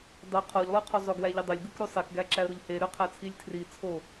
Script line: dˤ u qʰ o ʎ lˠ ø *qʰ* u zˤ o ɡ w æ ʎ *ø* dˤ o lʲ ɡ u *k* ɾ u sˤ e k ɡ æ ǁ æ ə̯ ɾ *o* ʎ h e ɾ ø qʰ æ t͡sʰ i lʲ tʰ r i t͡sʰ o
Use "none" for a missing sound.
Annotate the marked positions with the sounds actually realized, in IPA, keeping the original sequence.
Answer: qʰ, ø, k, o

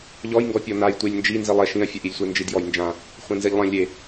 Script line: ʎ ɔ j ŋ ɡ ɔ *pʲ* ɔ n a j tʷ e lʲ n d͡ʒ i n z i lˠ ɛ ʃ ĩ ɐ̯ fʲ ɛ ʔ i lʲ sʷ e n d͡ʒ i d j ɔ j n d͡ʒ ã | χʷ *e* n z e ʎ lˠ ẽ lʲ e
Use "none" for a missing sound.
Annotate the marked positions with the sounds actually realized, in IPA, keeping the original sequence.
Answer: pʲ, ẽ

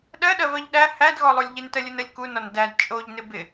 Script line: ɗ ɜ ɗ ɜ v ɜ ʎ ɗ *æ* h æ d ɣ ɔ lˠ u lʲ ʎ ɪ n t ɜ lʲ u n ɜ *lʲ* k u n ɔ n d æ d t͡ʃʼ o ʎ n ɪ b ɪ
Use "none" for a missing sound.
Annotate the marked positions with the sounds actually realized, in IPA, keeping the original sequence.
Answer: æ, lʲ

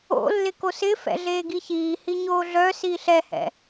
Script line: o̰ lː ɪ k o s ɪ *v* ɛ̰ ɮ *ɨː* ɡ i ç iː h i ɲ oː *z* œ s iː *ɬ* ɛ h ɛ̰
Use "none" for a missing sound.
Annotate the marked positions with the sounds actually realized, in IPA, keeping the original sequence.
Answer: f, eː, ɮ, ɬ

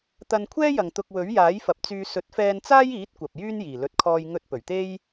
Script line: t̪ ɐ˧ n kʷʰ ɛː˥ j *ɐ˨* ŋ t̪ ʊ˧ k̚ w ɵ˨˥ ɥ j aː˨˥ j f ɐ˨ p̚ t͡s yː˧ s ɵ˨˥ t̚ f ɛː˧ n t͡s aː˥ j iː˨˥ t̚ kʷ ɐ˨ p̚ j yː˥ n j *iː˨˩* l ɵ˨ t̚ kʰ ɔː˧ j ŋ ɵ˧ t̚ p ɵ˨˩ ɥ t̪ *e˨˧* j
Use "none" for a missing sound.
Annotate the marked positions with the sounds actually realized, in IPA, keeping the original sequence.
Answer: ɐ˨, iː˨˩, e˥

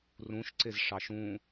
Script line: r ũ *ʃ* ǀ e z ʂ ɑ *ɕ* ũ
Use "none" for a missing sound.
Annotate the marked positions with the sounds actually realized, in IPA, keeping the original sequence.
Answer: ʃ, ʃ

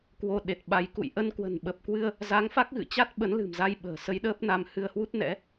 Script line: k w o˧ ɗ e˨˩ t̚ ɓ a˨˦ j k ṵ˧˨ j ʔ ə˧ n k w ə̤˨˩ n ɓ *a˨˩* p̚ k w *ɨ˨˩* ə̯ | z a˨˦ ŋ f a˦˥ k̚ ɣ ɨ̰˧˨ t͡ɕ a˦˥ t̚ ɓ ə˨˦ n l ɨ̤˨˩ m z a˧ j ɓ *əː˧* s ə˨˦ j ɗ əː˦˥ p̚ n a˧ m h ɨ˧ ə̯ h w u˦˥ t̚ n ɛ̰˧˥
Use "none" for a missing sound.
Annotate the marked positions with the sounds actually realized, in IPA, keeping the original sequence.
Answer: ə˨˩, ɨ˧, ə̤ː˨˩

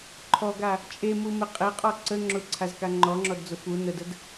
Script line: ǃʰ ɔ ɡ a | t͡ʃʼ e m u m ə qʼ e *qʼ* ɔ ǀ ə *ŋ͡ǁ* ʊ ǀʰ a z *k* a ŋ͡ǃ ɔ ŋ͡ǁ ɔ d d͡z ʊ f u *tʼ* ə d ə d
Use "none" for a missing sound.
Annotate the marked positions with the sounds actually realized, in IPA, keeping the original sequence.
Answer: qʼ, ŋ͡ǁ, k, n

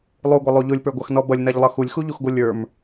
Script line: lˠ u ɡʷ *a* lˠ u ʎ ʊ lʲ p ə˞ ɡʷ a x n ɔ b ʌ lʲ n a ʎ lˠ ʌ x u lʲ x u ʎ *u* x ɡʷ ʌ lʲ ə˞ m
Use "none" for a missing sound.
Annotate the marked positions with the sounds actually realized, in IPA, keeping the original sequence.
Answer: ʌ, u

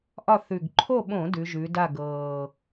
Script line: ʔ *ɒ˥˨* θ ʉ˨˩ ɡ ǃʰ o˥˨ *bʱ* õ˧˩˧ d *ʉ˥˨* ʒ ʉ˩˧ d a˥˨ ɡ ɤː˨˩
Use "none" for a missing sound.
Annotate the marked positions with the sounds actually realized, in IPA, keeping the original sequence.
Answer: ɒ˥˨, ɓ, ʉ˩˧

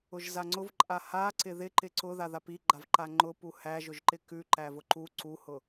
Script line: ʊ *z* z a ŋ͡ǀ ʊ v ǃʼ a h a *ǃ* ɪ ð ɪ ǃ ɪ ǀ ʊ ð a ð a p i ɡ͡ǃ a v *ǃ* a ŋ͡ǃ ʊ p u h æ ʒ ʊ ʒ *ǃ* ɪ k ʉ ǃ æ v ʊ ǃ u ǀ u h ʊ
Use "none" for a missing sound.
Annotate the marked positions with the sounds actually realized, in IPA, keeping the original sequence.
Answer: ʒ, ǀ, ǃ, ǃ

